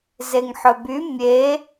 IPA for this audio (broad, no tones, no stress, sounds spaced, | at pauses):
z e ŋ ħ ɵ b y mʲ e